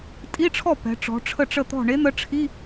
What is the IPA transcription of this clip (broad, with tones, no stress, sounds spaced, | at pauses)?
tʼ i˧˥˧ ʈ͡ʂʰ ɔ˥˩ p ɛ̤˩˧ ʈ͡ʂ ɔ̤˩˧ ʈ͡ʂʰ ə˥˩ ʈ͡ʂ ə˥˩ t̪ ɔ̤˥˩ ɳ e˧˥ n̪ ə˧˥ ʈ͡ʂʰ i˧˥˧